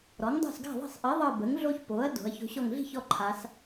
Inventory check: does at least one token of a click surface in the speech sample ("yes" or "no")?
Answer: yes